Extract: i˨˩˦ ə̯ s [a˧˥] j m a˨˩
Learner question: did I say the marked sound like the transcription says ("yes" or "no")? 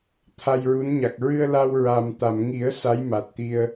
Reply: yes